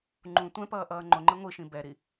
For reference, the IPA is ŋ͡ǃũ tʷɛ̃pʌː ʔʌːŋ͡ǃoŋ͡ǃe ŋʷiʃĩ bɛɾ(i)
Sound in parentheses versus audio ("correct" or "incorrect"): correct